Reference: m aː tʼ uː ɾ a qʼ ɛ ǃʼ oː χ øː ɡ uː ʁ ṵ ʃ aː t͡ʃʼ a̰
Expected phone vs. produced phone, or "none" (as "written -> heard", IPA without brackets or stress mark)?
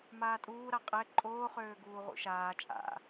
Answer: none